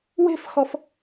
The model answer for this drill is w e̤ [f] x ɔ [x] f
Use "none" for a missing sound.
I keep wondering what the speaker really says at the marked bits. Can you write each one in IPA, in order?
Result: f, none

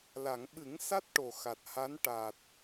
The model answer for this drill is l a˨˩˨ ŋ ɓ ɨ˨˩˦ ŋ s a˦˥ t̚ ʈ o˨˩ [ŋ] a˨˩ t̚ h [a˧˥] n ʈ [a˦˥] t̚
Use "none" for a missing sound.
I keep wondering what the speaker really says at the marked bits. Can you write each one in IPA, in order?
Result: x, a˧˥, a˨˩

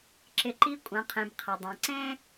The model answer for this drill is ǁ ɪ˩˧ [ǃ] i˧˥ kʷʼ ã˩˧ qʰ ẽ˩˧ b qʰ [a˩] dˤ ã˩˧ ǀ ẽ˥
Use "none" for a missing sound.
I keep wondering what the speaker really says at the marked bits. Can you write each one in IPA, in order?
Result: ǃ, a˩

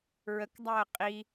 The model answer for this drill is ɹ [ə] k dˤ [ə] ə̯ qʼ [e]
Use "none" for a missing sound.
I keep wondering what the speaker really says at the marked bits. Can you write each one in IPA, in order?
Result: ə, a, i

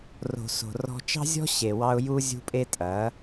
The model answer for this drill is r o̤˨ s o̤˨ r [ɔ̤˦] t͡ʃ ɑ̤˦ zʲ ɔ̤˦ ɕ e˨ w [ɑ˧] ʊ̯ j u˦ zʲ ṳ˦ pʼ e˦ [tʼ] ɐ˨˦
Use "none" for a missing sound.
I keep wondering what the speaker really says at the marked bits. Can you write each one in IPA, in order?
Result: ɔ̤˦, ɑ˧, tʼ

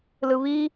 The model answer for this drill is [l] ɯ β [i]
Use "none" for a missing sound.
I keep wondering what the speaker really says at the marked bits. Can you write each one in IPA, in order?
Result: l, i

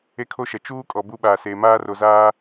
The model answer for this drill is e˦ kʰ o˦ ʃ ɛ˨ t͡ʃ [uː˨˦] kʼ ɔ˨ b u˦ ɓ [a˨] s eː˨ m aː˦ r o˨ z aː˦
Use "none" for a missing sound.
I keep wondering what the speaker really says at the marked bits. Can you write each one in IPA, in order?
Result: uː˦, a˨

